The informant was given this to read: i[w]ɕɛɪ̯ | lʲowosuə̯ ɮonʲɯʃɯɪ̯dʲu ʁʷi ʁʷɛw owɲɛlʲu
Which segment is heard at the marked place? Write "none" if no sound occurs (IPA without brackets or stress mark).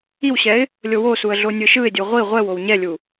w